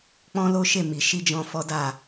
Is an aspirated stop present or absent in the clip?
absent